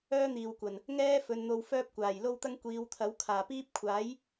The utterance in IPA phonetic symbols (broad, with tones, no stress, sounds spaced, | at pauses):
œː˥ n̪ iː˨ w kʷ ɐ˨˩ n | ŋ ɛː˥ f ɵ˨˧ n n̪ o˧ w f œː˥ p̚ kʷ aː˨˩ j l o˥ w t̪ ɐ˥ ŋ kʷ iː˨˧ w t̪ʰ ɐ˨˥ w kʰ aː˨˩ p iː˥ p̚ kʷʰ aː˨˥ j